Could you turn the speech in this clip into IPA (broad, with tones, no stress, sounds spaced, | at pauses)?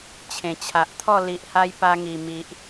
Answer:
t͡ɕʰ ẽ˨˩ t͡ɕʰ a˨ ʔ t̪ʰ ɔ˥˧ l i˨ ʔ h a˧ j p a˧ ŋ i˨˩ m i˨ ʔ